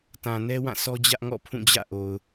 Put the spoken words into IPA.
tã˨nɛ˦ wã˦˨sʰɔ˦ d͡ʑä˦ʔŋɔ̰˦˨pʰũ˦˨d͡ʑä̰˦˨ ʔo˨ʊ̯

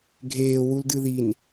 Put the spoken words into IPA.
ɡʱeː wuldɨðin

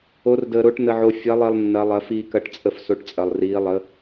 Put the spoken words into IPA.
o˧˥r dəː˧ɾo˧˥ʈ nə˧ʕo˧ fʲɐ˧˥lˠi˧lˠ nːɐ˧˥lˠɐ˧˥ fiː˧kɐ˧˥ʈt͡sʼə˧f so˧˥ʈ t͡sʼɐ˧lˠriː˧˥ lˠə˧˥

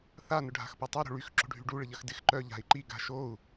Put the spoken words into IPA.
θa nʊɖʱa̤xpotˤœ ɾo̤ɭyx ǁo̤ɖʱyɖu ɭɪʎɐxdɪx ǃœ ʎa̤i̯ǃi ɡa̤ʃou̯

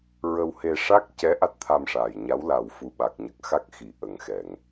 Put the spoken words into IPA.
ɹə˧whe˧ ʂa˦˥k̚cɛ˧˥ ʔa˦˥t̚t̪ʰa˧mʂaː˨˩jɲa˧˥w la˨˩w fu˨˩ɓa˨˩k̚ɲə˨˩k̚ xa˦˥k̚xi˨˩ʔə˨˩ŋ xɛ˨˩˨ŋ

